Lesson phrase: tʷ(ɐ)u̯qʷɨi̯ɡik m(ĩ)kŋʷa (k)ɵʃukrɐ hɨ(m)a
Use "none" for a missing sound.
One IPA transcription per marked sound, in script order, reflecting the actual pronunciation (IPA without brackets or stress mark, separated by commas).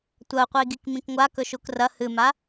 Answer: ɐ, ĩ, k, m